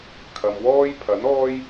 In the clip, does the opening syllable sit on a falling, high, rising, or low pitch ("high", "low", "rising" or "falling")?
low